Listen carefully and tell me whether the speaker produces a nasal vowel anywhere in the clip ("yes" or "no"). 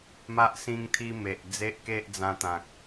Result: yes